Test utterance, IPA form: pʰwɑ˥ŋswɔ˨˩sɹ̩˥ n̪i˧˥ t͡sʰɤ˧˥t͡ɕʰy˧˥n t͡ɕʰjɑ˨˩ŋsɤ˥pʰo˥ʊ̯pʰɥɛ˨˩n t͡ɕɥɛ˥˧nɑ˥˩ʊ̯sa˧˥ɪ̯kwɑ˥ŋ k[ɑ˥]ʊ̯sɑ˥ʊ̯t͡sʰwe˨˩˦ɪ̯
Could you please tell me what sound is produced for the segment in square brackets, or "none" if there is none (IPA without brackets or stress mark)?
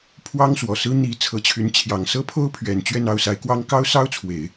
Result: ɑ˥